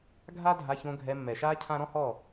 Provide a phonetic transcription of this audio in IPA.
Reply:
ɡʱ a˦ dʱ a˧ ç õ˧ ɡʱ ɛ˧ mː ɛ˨ ʃ aː˦ cʰ ã˦ ɾ ɔ̃˦ h ɔ˦˨

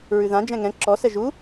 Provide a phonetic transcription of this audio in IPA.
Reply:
ɹ ʉ ð ã d͡ʒ ɛ̃ ŋ ɛ̃ ǁ ɔ s ɛ ʒ u

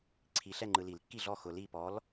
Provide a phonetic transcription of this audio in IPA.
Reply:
ǀʰ i˨ ɬ ɛ˥˨ ŋ͡ǃ ɯ˨ l i˨˩˦ l kː i˥˨ ɮ ɔ˥˨ x ʊ˨ l i˥˨ p ɔ˨˥ l

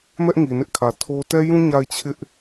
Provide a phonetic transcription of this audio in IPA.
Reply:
m ɛ˦ ʔ ŋ i˨ n ɪ˦ ʔ kʰ ä˨ tʰ o˦ t ɛ˦ j ũ˦ ɲ a˦˨ ɪ̯ t͡ɕʰ ɪ˦ ʔ

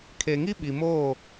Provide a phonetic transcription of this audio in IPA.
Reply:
kʰ e˨ ŋ i˦ ɓ i˨ m oː˦˨

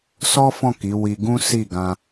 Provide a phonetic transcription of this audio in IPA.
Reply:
s ɔ˦ f ɔ̃˦˨ k i˨˦ w i˧ ɡ ũ˦ s i˦˨ ɡ ã˧

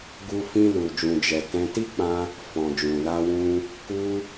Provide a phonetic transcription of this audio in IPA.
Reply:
ɡ u˦ f ĩ˧ l u˨ d͡ʒ ũ˨ d͡ʒ ɛ˨ t ɛ̃˧ t i˦ k͡p ã˧ | f ɔ̃˨ d͡ʒ ũ˨ l a˧ w ũ˧ | k u˧

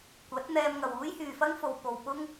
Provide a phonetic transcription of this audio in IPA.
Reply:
kʷ ɐ˨˥ t̚ n̪ ɛː˧ m ŋ ɐ˨ w uː˥ j h yː˨ f ɐ˥ ŋ f o˨ w p o˨ w p ʊ˥ ŋ

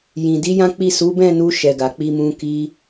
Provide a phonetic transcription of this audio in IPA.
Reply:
j ĩ˨ d i˨˦ j ã˦ k͡p i˦˨ s u˨˦ b ɛ̃˦˨ n u˧ ʃ ɛ˨ ɡ a˨ k͡p i˧ m ũ˧ k i˧

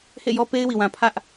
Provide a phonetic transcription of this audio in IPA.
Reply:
h ḛ˦˨ j ɔ˦ p e˦ ɪ̯ w i˨ w ã˨ pʰ ä˦ ʔ

